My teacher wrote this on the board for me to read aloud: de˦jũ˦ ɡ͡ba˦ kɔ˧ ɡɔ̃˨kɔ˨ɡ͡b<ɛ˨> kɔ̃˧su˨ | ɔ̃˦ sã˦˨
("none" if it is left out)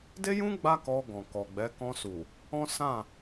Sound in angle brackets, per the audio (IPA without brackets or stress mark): ɛ˨˦